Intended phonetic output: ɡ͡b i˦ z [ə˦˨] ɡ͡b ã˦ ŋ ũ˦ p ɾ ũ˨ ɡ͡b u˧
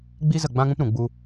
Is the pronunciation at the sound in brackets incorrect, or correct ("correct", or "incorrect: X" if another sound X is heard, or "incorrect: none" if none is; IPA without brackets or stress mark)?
correct